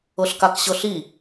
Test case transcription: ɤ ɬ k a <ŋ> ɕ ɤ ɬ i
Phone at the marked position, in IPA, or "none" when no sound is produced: k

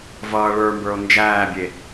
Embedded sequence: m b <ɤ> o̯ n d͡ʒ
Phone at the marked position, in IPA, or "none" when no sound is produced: ə˞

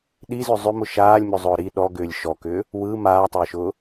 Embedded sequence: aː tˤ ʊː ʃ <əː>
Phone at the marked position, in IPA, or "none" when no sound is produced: ʊː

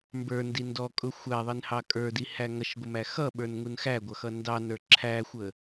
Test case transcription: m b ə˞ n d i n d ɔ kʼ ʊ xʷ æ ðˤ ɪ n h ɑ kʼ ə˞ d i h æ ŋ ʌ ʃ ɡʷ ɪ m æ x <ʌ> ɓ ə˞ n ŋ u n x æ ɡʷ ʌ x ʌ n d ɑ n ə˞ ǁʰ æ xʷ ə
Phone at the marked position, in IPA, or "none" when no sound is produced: ʌ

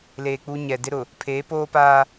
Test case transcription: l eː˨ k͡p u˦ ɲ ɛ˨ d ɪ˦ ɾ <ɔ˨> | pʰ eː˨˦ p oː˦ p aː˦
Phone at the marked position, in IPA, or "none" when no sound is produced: ʊ˨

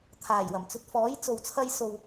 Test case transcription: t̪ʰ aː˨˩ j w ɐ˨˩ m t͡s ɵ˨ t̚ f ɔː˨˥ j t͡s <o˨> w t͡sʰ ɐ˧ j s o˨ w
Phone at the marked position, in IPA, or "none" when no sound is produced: o˨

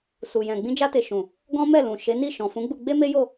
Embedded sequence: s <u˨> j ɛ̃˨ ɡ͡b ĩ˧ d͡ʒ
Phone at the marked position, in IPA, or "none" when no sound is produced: u˨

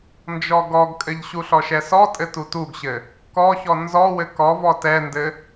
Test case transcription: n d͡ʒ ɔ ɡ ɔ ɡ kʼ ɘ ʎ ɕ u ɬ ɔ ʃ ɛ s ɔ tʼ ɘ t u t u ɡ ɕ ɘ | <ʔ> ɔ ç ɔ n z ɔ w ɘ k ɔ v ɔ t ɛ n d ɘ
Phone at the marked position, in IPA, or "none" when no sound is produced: k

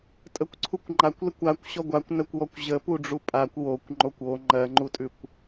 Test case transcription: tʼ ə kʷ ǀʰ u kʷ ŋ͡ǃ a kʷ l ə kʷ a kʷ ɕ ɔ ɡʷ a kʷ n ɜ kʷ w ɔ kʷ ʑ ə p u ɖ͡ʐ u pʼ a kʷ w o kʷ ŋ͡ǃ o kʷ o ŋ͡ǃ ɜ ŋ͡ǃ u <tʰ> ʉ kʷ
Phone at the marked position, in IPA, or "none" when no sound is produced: tʼ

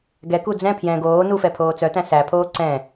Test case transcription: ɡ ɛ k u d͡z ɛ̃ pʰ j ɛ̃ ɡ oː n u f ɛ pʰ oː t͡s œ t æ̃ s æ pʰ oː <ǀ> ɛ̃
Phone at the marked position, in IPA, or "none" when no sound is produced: ǀ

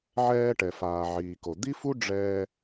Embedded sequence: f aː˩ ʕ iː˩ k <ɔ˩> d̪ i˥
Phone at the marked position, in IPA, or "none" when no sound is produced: o˩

